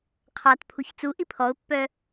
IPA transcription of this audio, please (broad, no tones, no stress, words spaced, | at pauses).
qʰɑt pʰuçt͡suʔi pʰɔʊ̯pːœ